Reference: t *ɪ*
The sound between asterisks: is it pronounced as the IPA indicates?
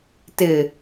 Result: yes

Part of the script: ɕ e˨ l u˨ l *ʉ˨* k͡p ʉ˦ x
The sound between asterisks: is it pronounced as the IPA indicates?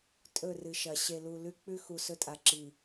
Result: no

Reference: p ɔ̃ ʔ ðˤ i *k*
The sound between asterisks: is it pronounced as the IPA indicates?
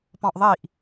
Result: no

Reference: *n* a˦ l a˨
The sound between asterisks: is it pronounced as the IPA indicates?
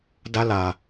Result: no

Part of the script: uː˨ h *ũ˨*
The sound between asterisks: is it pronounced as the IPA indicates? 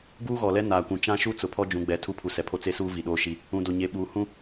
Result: no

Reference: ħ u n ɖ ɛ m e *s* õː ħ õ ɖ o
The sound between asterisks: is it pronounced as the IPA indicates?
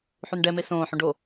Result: yes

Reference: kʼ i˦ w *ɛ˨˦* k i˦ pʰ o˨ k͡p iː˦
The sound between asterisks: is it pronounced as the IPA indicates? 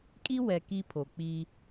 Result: no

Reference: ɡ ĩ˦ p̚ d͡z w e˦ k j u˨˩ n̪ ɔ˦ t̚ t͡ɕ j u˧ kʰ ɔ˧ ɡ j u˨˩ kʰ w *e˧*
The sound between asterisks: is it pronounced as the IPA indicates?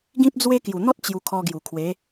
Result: no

